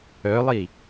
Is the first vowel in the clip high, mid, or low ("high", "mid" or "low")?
mid